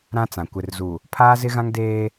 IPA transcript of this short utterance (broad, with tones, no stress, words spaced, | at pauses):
ɾã˦t͡sã˨ kʷɪ˨rzu˨ | pʰaː˦zɪ˦ɣã˦ŋ deː˦